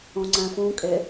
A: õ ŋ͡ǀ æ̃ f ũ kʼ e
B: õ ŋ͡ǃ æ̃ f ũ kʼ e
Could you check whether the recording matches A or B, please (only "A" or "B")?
A